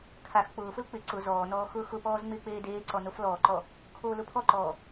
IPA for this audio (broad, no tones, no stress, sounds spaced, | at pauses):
kʰ a x k͡p ʊː f ʊ l k͡p ɪ ǀ ʊ z ɔː n ɔː x ʊː x ʊ p ɔː z ŋ͡m ɪː k͡p eː d eː ǀ ɔ n o f l ɔː ǃ ɔ | kʰ oː l ʊ pʰ ɔ ǃ ɔː